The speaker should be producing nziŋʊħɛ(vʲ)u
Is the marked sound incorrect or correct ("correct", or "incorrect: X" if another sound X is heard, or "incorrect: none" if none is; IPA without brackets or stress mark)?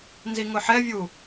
correct